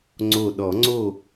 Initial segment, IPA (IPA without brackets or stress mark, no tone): ŋ͡ǀ